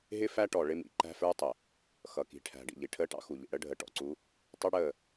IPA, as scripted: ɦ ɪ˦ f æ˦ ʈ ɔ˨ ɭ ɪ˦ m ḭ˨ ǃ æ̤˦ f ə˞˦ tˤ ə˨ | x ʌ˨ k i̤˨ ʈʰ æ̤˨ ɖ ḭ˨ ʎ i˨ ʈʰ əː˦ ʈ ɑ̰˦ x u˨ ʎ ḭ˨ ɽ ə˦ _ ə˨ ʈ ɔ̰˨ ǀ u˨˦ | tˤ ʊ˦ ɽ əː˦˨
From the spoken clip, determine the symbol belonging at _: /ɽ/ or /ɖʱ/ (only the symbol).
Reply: ɖʱ